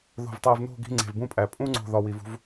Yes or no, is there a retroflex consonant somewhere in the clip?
no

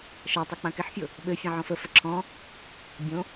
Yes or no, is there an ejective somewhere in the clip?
no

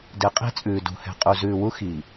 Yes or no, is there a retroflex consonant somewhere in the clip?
no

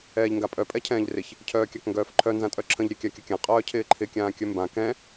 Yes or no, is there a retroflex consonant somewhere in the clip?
no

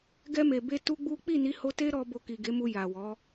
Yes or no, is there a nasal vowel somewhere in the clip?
no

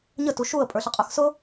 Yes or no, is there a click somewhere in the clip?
no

